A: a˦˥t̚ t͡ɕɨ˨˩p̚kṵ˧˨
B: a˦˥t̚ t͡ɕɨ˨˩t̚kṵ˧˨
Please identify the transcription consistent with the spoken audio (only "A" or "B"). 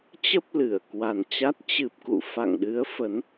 A